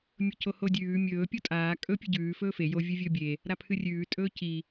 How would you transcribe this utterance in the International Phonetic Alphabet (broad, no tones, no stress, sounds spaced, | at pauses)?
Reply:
mʲ ɵ c o h o dʲ ʉː mʲ ɵː pʲ o tʼ aː kʼ ɵ pʲ ɨ ɟ ʉː f ɵː f e j o vʲ ɨ vʲ ɵː bʲ e | ɾ a pʰ ɨ rʲ ʉː tʼ ɵː c i